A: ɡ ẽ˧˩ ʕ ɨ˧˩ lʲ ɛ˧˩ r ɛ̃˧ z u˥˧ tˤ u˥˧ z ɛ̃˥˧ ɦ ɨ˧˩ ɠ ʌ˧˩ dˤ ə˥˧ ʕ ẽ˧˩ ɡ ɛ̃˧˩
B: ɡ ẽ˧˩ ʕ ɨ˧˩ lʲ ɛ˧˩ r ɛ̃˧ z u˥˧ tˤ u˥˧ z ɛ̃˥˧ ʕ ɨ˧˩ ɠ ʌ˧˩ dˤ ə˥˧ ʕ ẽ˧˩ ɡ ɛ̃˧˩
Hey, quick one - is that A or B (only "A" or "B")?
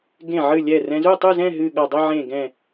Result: A